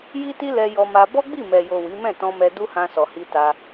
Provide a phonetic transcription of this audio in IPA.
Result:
j i˦ t i˦ l ɛ˧ j ɔ˧ m a˧ b ɔ˦ ɡ͡b i˦˨ m ɛ˨ j o˨ w i˨˦ m ɛ̃˦˨ t ɔ̃˧ m ɛ˧ d u˦ h ã˧ s ɔ˨ h i˧ t a˧

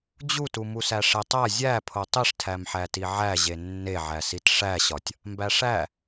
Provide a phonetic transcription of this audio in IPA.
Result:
d͡ʑ u t u m u s æ ʂ e tˤ æ zʲ æ pʰ o tˤ i ʂ tʰ æ m ħ æ t i ʕ æ ʑ e nː e ʕ æ s i t ʂ æ ɕ ɒ tʲ | m b æ ʂ æ

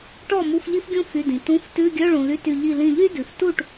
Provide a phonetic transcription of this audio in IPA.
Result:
ʈ ɔ˥˩ m u˧˥˧ f ʎ i˥ f ɡʲ ũ˥ f y˩˧˩ d ĩ˩ t ũ˧˥˧ f t ʉ˧˥˧ ɡʲ œ˧˥˧ ɭ ũ˩ l y˧˥˧ t y˧˩ ʎ i˧˩ l ĩ˧˩ ʎ y˥ d ʉ˩ f t u˥˩ ʈ

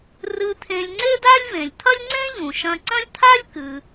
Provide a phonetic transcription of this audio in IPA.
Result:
r ɨ˧ t̪ʰ ẽ˧ lʲ ŋ͡ǀ e˥ d a˥ lʲ v ẽ˩ lʲ t̪ʰ ɐ˥ lʲ ŋ͡ǀ ẽ˥ ʎ ũ˩ ʃ ɐ̃˧ ǀ ɐ̃˥ lʲ t̪ʰ a˥ lʲ k ɨ˩

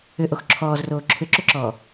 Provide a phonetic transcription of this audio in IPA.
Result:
ʏ ʔ o x ǁʰ ɔː z r oː ǁʰ ʏ ǁ ʏ ǁ ɔː

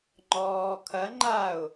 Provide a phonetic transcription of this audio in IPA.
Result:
ŋ͡ǃ ɔː kʰ ɐ ŋ͡ǃ a ʊ̯

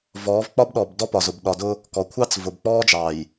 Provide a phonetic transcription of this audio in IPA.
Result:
v ɔː˨˦ v k͡p ɒ˦ b ɗ ɔ˨ b d ɔ˦ p ɒ˨ z ʊ˨ b ɗ ɒ˨ d ʊ˦ | k ɔ˨ kʷʰ ɑ˦ t͡s v ʊ˨ b k͡p ɔː˦ d͡ʒ ɑː˨ j

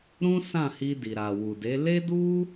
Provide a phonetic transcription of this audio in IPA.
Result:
ɾ ũ˦ s ã˦˨ h i˧ d i˨ ɾ a˨ w u˨ d e˨˦ l e˦ d u˦

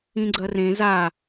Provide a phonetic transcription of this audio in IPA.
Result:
ĩ ɡ͡ǀ ɐ r ẽ z a

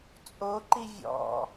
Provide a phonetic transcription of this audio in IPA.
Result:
t͡sʼ o ǃ i vʲ ɔ̰

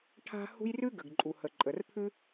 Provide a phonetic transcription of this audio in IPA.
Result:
ʈʰ a̤˥ h ṳ˥ j r ʉ˥ ɡ ə˩ ɡ ǃʼ u˩ h ə˩ ǃʼ ə˩ r pʰ ʉ˥

